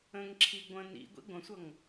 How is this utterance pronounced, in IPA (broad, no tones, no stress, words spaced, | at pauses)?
ə̃ŋǁʰi ɡʷə̃ nḭ ɡʷḭɡʷə̃sʷʌŋ